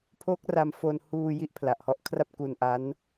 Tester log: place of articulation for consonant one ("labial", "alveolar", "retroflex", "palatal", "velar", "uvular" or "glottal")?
labial